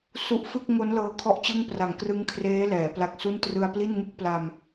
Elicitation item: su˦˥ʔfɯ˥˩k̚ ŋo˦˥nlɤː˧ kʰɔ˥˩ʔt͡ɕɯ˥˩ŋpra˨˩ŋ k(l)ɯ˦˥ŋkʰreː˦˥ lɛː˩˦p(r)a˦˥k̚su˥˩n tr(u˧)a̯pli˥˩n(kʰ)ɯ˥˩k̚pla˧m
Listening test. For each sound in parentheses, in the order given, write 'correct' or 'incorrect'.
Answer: incorrect, incorrect, incorrect, incorrect

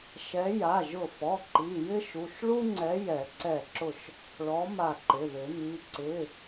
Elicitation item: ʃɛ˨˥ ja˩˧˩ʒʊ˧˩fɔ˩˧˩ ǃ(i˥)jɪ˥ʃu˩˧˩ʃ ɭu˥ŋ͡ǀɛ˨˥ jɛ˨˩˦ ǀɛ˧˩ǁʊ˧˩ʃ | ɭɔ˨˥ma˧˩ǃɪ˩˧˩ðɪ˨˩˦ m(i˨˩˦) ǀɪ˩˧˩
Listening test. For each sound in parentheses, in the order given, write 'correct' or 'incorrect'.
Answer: incorrect, incorrect

